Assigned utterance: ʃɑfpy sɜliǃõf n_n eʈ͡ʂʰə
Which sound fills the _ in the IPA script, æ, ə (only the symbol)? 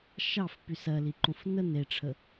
ə